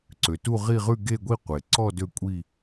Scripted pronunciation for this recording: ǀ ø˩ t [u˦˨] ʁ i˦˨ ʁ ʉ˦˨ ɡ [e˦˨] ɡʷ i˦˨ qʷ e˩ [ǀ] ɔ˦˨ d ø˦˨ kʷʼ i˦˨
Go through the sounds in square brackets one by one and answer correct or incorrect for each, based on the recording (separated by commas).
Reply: correct, correct, correct